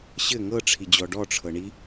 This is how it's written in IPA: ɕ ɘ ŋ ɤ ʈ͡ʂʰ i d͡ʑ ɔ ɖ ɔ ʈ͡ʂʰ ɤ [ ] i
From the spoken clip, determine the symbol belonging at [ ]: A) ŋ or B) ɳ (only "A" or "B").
B